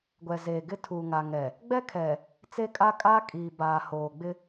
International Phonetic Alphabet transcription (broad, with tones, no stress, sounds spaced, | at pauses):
ɡʷ ɛ˨ z eː˨ ɡ ɪ˦ tʰ u˨ ŋ a˨ ŋ ɛ˨ | ɡ͡b ɛ˦ kʰ ɛ˨ | t͡s e˦ kʼ a˦ kʼ aː˦ kʼ iː˨ b aː˨ h oː˨ ɡ͡b ɪ˦